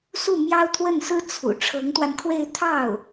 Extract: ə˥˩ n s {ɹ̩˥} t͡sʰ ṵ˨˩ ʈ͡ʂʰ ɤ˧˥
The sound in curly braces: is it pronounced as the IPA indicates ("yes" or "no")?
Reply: yes